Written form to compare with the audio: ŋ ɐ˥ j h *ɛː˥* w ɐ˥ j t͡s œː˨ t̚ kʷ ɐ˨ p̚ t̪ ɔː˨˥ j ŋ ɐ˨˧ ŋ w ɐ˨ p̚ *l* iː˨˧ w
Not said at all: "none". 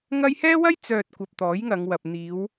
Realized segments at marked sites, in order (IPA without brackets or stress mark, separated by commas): ɛː˥, n̪